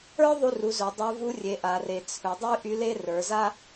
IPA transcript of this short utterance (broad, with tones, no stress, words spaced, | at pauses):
ə˞˥ðˤu˧ru˩˧ zɵ˩˧dˤə˞˧˥vu˧˥ rʲe˩˧ʔa˩re˩ t͡sʰɵ˩˧dˤy˥ ʔy˧˥le˥ rə˞˩˧za˥